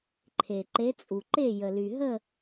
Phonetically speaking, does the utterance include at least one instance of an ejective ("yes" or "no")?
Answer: yes